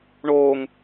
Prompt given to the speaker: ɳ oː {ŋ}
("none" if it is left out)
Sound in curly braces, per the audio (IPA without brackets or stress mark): ŋ